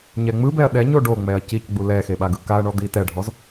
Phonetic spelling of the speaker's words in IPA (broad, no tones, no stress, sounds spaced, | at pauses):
ɲ ɛ ŋ͡m ɯ b ɛ ɐ̯ ɗ ɛ ɲ o ɖ o ŋ͡m ɛ ɐ̯ c i c ɡ͡b u l ɛ x e ɓ a ɡ ɯ k a ɐ̯ ɳ ɔ d̪ i t ɛ ɖʱ ɔ z